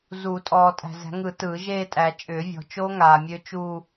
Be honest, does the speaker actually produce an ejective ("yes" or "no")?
yes